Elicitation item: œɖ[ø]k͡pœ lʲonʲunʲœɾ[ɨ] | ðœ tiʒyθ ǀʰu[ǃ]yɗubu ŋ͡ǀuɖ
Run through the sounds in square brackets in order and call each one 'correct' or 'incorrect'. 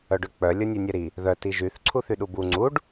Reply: correct, incorrect: i, incorrect: θ

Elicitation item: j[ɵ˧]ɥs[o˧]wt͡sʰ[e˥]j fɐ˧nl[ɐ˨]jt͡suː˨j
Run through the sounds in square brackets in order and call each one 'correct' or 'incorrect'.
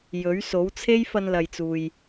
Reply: incorrect: ɵ˨˥, incorrect: o˨˥, correct, correct

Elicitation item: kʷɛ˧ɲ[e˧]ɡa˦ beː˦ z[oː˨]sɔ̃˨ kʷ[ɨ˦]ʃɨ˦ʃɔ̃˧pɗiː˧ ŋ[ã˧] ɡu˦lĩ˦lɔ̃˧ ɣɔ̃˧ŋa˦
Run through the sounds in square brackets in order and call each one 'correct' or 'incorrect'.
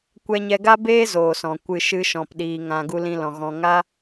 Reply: incorrect: ɛ˧, correct, incorrect: ɨ˧, correct

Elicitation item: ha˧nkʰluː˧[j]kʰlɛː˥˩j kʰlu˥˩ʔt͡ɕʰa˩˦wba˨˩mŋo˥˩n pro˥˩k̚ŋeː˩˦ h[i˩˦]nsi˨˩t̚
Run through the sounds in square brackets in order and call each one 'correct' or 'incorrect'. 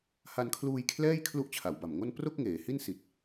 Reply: correct, incorrect: i˥˩

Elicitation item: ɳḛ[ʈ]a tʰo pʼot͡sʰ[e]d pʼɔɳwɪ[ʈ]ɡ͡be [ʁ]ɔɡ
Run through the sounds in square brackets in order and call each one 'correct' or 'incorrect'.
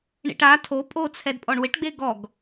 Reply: correct, incorrect: ɛ, correct, incorrect: ɡ

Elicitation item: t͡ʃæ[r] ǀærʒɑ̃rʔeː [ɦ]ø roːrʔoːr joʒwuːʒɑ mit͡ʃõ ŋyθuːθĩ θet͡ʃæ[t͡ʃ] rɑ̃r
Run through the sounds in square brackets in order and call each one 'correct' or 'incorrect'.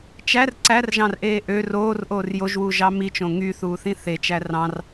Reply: correct, incorrect: ʔ, incorrect: none

